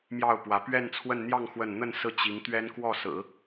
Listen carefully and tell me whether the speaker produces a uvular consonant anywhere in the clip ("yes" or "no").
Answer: no